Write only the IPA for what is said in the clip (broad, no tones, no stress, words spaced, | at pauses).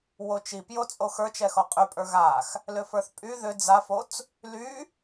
wot͡ʃipjo t͡sʼoxə˞t͡ʃɛxɔ qʼypʼə˞ ɣax | lʏfə˞θpʼy ðʏ d͡zafot͡s | ly